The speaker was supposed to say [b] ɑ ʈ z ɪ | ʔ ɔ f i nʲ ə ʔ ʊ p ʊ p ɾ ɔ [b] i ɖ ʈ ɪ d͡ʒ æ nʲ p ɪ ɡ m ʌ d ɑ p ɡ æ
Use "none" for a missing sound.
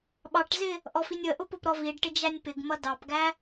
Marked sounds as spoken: ɓ, v

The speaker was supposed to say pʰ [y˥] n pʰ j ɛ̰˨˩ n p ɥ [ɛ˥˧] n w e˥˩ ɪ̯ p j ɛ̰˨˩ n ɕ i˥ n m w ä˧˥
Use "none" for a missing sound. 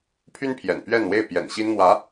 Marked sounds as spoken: y˥, ɛ˥˧

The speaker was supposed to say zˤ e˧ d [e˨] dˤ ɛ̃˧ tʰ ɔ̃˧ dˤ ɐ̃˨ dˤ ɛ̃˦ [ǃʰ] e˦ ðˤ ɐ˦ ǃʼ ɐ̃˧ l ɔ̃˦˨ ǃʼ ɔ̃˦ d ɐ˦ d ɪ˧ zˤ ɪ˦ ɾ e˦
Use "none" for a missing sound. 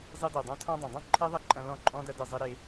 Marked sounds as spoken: ɛ˨, ǃʰ

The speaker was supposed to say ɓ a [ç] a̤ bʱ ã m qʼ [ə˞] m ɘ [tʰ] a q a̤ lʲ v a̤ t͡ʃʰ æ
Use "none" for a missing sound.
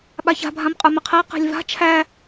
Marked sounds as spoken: ç, ə˞, qʰ

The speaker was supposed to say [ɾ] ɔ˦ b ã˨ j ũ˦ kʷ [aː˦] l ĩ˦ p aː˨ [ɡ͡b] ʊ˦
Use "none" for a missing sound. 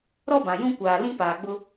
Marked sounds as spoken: ɾ, aː˨, ɡ͡b

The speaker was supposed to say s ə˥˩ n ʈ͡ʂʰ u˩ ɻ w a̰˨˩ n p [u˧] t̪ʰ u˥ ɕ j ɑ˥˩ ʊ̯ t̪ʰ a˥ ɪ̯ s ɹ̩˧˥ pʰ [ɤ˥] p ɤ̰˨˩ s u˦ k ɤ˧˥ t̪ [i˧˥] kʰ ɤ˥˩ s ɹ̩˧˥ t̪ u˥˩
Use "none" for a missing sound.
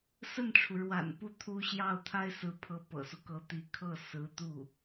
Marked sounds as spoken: u˥˩, ɤ˧˥, i˧˥

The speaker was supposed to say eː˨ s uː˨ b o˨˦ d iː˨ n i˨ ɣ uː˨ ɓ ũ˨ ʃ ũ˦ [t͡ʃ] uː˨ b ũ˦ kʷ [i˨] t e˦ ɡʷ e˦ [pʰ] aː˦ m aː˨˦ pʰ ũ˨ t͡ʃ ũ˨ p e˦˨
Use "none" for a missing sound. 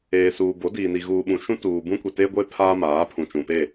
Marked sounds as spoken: t, i˨, pʰ

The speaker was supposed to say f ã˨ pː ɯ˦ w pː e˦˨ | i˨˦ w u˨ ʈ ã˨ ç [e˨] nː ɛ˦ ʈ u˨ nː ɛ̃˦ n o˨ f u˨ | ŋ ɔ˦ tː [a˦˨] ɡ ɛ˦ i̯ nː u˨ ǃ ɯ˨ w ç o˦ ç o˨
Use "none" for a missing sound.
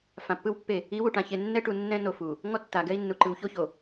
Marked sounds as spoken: e˨, a˨

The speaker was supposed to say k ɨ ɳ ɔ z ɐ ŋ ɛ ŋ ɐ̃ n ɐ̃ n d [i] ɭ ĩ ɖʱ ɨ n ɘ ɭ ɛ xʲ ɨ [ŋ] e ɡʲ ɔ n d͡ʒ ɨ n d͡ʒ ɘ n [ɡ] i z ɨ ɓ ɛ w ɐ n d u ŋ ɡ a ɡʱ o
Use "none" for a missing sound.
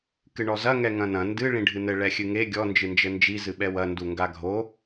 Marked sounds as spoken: ɨ, ŋ, d͡ʒ

